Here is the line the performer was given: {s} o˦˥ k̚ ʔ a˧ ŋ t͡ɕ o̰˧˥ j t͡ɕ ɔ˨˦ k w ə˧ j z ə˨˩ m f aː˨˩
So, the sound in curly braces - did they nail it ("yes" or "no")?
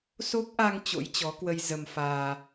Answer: yes